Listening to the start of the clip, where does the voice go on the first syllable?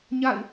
falling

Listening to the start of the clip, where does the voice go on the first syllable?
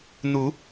rising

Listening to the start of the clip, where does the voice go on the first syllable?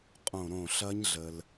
falling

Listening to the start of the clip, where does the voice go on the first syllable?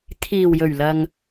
low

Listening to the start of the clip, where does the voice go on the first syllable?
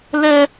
high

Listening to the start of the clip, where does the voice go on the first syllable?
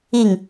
falling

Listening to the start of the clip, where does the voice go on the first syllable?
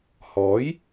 rising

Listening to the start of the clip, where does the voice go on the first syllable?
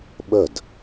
falling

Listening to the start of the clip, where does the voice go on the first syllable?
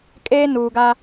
high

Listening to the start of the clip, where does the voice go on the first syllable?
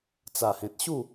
low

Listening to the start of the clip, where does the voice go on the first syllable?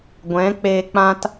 rising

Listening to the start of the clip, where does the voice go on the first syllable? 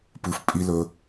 low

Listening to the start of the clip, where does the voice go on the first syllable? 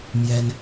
high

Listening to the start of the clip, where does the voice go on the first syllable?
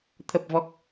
low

